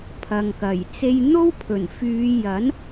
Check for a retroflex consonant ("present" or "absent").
absent